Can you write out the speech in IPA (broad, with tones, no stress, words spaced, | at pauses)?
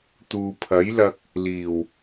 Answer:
t̪uː˨pʰɐ˨˥jlɐ˧k̚ | liː˨˩w